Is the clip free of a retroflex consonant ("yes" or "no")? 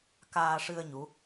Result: no